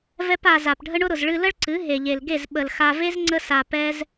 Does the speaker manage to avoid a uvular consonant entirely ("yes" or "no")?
yes